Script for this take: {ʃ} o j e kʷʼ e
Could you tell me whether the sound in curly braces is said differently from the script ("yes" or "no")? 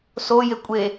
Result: yes